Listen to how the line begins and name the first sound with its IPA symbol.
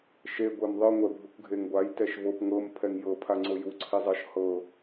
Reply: ʃ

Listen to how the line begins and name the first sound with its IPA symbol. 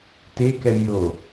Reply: t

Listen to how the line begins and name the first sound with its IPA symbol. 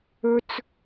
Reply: ɵ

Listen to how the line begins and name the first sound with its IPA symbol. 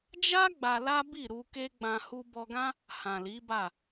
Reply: d͡ʒ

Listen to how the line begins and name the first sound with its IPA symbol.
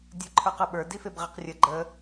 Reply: dʲ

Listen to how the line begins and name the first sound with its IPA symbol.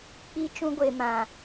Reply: k͡p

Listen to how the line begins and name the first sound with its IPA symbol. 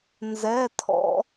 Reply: n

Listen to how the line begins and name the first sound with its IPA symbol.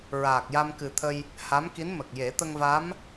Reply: ɹ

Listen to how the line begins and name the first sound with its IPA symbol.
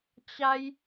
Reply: t͡ɕ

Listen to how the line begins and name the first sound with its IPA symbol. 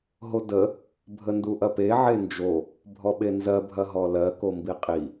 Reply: ɦ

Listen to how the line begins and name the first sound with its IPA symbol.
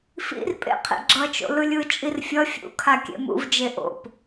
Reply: f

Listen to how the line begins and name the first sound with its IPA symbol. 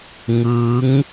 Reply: ŋ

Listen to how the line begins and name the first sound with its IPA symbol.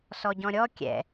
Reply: s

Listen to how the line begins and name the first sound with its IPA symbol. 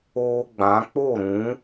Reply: oː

